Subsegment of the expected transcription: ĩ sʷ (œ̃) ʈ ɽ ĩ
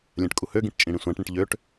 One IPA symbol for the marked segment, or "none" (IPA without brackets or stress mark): æ̃